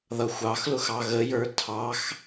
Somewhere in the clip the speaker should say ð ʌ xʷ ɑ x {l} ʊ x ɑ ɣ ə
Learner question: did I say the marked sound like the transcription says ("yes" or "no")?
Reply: yes